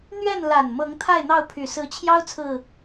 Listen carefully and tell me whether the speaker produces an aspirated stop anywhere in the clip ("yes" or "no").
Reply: yes